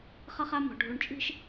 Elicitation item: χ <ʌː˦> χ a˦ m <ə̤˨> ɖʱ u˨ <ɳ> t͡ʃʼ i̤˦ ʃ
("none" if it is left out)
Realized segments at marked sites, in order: ʌ˦, ɔ̤˨, ɳ

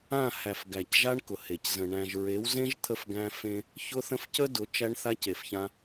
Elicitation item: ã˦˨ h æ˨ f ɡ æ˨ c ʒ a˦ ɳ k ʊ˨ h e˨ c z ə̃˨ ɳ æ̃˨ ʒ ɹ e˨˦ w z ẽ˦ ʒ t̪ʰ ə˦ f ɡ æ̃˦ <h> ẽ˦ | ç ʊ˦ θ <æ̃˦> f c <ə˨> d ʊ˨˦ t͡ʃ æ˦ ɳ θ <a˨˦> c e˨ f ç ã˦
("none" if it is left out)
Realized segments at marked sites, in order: f, ə̃˦, ə˦, a˦

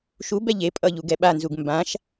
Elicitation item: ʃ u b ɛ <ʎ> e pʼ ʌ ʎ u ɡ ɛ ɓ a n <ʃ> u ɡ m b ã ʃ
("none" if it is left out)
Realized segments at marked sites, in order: ʎ, z

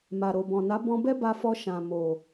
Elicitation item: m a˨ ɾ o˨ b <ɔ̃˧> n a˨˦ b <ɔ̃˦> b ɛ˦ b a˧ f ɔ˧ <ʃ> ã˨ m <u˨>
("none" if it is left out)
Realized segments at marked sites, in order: ɔ̃˨, ɔ̃˧, ʃ, o˨

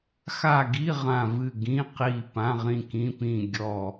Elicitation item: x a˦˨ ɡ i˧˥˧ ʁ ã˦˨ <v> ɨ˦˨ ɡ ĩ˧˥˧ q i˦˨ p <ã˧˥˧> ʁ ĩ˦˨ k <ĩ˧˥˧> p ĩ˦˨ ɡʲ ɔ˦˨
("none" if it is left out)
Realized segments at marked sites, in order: v, ã˧˥˧, ĩ˧˥˧

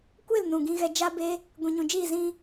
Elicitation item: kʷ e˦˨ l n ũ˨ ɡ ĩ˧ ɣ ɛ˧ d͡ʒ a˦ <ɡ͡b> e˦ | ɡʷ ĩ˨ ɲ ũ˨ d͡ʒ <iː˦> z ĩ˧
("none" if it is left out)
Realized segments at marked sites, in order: b, iː˦˨

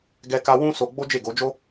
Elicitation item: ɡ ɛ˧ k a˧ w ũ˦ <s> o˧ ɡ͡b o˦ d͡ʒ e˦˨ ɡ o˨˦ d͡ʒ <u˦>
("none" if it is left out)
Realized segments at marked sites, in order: s, o˦

